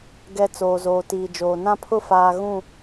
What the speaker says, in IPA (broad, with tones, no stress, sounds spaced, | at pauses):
ɡ ɛ˨ t͡s oː˨ z oː˨ t iː˨ d͡ʒ oː˨ n ã˦ pʰ ʊ˦ f aː˨ ɣ ũ˦˨